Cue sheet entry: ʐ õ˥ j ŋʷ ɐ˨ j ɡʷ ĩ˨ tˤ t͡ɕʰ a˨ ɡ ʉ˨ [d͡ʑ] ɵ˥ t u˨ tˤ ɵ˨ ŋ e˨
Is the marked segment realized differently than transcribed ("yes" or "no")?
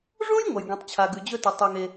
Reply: no